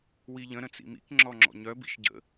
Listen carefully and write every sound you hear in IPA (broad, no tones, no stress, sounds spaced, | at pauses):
w i ʎ ə̃ ɾ ə̃ t͡s ḭ m ḭ k ŋ͡ǁ ɔ ŋ͡ǁ ɔ̰ ɲ œ b ḭ ʃ ɟ ə̰